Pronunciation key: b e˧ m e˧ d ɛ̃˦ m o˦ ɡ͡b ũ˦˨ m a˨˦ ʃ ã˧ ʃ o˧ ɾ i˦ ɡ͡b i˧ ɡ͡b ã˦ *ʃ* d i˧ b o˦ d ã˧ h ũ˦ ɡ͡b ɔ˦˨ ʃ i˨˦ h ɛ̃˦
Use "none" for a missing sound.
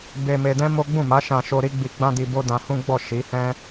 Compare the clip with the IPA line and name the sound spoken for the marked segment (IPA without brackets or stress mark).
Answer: none